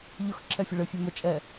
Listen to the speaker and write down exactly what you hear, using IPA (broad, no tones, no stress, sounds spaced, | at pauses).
ʎ ʊ x ǁʰ ɛ fʲ ɘ ɭ ɘ fʲ ɛ m ə t͡ʃʼ ɛ